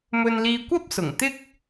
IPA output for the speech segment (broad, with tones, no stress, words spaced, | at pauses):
mɵ˧nliː˧kʷɐ˥p̚sʊ˨˩ŋ t̪ɪ˥k̚